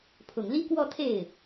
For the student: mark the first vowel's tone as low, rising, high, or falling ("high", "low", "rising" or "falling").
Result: low